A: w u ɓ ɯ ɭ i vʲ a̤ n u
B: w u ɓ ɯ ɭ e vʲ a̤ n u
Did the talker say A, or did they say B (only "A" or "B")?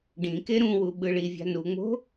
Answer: A